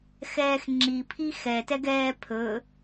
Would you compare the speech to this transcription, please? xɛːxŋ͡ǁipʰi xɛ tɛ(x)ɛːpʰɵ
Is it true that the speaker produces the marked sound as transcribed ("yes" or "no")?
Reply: no